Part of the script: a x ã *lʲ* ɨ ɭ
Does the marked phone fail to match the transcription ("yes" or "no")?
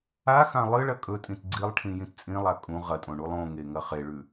yes